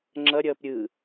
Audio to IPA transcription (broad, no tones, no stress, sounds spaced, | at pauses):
ŋ͡ǁ ʌ ɾʲ ʌː p ɾʲ ɯ